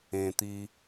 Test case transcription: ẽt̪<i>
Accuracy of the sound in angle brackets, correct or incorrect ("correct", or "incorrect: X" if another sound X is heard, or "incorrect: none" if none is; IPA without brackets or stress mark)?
correct